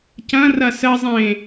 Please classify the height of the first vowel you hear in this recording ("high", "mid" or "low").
low